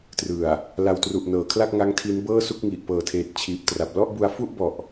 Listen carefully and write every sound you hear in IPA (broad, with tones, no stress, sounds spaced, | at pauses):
t r ɯ˨˩ a̯ | l a˧ w t r u˨˩ ʔ n ɤː˩˦ kʰ l a˥˩ k̚ ŋ a˦˥ ŋ tʰ i˦˥ n b ɤː˥˩ s u˥˩ k̚ ŋ i˨˩ ʔ p ɤː˨˩ tʰ eː˨˩ t̚ t͡ɕʰ iː˨˩ p̚ t r a˨˩ p̚ l ɔ˥˩ ʔ b u˧ a̯ f u˥˩ ʔ b ɔ˨˩ ʔ